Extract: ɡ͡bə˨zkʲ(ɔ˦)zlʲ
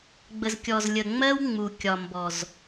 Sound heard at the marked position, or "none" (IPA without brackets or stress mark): ɔ˨